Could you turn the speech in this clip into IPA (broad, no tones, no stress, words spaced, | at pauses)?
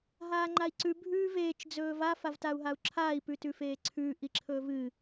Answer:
ɦaːŋ͡ǃai̯ǀʉ bʱʉːveːt͡ʃ d͡zɵːva favtau̯ɦau̯ǁʰaːi̯ pʉtʉfeːǀʰʉː ʔiǁʰɵːvɨ